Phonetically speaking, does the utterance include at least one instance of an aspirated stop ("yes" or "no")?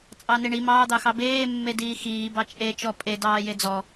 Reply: no